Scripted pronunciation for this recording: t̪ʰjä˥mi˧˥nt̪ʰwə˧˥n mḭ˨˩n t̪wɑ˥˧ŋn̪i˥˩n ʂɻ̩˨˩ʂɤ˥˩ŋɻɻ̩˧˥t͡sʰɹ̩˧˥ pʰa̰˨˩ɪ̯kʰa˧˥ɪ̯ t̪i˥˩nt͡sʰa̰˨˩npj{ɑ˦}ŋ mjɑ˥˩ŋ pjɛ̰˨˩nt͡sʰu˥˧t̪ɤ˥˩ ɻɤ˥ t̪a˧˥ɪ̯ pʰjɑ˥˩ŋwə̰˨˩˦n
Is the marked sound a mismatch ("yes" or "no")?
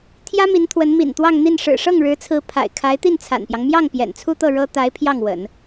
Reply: no